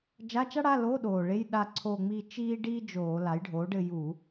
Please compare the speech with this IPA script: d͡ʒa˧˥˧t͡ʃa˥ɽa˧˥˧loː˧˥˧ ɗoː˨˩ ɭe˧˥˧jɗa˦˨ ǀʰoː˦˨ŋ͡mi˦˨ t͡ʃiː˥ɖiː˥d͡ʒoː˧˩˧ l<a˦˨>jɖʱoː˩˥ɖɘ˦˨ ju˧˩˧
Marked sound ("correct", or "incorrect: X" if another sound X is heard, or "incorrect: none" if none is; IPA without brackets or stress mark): incorrect: a˩˥